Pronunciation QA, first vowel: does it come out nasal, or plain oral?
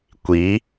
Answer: oral